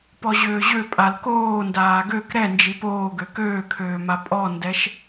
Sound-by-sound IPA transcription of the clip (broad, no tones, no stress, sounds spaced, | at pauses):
p ɔ ʑ øː ʑ ø pʼ a l k oː n d aː ɡ ø k ɾ ɛ n d͡ʒ i p oː ɡ ø k øː kʰ øː m a pʼ ɔ n d ɛ ʃ